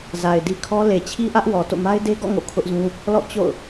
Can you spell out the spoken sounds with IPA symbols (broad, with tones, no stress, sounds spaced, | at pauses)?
z a˨ ɪ̯ d i˦ kʰ ɔ˦ l e˨ t͡ɕʰ i˦ ʔ ä˦ ʔ w ɔ˨ t o̰˦˨ m a˦ ɪ̯ d e˦ ɡ ɔ̰˦˨ ŋ o̰˦˨ kʰ ʊ˦ ʔ z ũ˦ | l ɔ̰˦˨ t͡ɕ o̰˦˨ ʊ̯